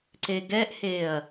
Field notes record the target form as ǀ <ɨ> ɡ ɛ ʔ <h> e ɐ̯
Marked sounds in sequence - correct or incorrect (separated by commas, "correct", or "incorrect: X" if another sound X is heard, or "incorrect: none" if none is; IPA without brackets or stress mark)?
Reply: incorrect: e, correct